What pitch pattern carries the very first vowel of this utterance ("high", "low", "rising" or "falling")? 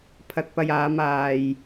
low